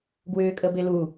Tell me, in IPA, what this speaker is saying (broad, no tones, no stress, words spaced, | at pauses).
ɡwʏːkʼəbɪlu